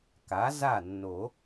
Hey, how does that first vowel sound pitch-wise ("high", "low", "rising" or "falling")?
rising